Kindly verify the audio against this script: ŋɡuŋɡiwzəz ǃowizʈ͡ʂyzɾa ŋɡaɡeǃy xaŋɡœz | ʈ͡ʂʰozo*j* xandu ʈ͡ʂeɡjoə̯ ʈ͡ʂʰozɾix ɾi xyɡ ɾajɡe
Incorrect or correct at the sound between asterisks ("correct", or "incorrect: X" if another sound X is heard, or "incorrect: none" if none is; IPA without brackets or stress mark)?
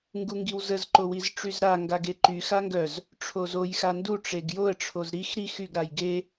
correct